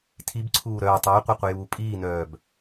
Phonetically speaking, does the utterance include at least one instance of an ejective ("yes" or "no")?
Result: yes